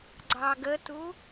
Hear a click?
yes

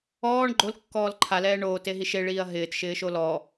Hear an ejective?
no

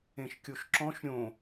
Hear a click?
yes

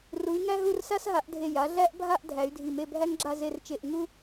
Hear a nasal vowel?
no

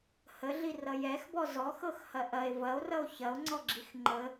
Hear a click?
yes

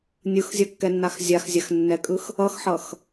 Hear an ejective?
yes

